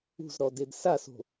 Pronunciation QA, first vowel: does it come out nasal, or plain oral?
oral